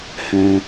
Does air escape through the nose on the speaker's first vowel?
yes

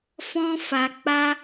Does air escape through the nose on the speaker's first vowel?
yes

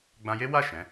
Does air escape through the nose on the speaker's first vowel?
yes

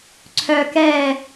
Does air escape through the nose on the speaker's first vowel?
no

